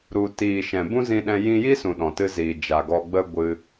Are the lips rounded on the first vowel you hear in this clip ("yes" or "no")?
yes